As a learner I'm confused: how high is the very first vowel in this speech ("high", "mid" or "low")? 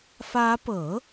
low